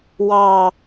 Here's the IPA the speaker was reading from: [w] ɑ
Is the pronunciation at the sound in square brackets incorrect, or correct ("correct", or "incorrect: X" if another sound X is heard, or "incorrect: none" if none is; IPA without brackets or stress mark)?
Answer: correct